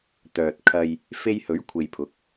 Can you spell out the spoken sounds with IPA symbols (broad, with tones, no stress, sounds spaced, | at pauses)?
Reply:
t̪ œː˨ t̚ kʰ ɐ˧ j | f e˧ j h ɵ˨˥ ɥ kʷʰ e˨ j pʰ ʊ˨˥ k̚